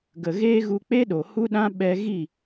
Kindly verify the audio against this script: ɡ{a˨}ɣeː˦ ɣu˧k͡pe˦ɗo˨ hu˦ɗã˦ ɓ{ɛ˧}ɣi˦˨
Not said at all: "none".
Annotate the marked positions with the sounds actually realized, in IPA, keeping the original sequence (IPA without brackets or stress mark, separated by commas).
ə˨, ɛ˧